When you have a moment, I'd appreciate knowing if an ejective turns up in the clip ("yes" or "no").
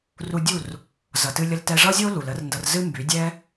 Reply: no